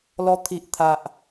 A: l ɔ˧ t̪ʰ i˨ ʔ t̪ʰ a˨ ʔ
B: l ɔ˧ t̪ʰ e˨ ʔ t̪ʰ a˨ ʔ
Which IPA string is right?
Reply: A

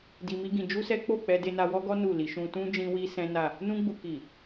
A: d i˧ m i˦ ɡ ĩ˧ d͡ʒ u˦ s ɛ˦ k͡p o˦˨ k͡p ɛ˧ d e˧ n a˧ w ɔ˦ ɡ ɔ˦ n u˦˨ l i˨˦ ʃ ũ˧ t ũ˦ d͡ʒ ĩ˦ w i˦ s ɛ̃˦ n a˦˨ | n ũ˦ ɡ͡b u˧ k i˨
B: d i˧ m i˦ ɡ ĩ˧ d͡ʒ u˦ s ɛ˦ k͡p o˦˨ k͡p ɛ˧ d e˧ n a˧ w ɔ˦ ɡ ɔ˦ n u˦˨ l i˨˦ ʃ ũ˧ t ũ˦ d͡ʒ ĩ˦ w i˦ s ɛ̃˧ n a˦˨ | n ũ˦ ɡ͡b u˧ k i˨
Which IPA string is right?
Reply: A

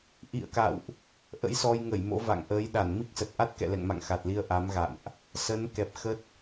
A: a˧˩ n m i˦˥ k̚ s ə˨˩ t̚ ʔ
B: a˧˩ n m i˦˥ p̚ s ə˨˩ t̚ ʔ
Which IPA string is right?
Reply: A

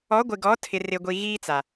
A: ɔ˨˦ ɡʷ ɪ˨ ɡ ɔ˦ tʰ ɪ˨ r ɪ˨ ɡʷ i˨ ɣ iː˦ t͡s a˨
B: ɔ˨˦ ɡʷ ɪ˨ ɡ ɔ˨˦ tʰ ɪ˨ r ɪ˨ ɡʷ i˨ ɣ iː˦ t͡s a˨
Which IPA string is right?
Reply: B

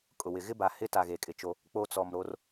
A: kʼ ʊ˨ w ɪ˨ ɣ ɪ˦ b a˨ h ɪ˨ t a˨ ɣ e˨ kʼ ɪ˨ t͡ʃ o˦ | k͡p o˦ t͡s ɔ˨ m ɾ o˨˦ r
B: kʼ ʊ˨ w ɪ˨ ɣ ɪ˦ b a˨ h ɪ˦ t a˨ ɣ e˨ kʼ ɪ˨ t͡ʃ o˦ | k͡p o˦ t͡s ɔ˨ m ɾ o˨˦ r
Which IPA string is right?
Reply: B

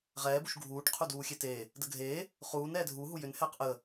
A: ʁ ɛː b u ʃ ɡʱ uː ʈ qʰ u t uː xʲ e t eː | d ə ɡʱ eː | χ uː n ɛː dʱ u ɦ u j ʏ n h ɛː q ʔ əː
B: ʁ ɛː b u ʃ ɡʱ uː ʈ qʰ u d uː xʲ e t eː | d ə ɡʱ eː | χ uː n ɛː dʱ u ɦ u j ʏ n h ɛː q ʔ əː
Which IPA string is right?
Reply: B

